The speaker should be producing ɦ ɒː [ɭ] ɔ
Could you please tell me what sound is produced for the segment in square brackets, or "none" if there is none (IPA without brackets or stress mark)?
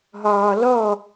l